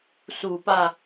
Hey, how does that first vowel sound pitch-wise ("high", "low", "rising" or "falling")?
low